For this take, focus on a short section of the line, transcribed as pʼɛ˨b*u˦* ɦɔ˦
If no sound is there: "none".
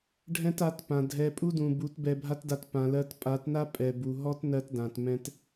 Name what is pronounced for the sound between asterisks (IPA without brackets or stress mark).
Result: u˨